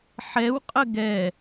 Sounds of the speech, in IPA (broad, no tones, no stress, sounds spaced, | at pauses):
ħ ɛ w qʼ ə ɡ ɛ